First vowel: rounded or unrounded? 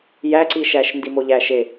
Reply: unrounded